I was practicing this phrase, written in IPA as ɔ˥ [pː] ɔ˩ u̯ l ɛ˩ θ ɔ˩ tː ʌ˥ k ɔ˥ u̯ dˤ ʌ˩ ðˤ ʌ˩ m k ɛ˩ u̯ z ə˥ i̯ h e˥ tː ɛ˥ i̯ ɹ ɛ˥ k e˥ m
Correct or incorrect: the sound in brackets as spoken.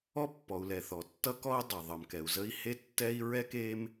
correct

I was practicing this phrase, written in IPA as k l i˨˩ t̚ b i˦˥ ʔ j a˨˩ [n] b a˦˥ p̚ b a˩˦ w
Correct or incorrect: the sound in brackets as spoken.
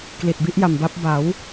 incorrect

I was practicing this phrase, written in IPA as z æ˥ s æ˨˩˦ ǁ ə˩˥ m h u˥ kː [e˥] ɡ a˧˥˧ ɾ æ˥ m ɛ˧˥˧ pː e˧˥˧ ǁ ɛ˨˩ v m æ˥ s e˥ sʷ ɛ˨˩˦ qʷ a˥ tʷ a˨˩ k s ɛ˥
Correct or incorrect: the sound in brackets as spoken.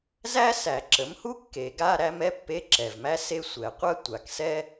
incorrect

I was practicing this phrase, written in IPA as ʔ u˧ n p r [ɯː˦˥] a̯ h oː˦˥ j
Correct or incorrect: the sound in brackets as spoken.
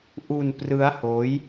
incorrect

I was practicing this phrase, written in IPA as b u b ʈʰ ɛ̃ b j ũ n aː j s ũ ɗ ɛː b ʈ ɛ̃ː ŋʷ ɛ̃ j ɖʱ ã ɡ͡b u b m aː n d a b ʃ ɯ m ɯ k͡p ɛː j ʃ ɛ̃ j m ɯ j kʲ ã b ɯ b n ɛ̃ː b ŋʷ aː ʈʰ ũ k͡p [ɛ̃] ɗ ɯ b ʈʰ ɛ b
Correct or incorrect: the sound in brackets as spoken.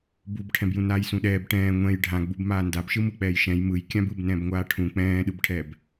incorrect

